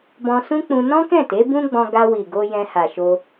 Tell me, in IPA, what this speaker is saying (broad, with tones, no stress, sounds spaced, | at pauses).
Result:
b ɔ̃˧ s ũ˦ k͡p ũ˧ n ɔ̃˦ k ɛ̃˦˨ t e˨˦ b ũ˦ ɡ͡b ɔ̃˧ ɡ a˧ w i˨ ɡ o˧ j ɛ̃˧ h a˨ ʃ o˧